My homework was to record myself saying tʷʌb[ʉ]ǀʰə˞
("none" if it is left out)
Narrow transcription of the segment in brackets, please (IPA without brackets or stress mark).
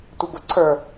ʊ